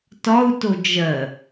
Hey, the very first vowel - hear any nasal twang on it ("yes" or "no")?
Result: no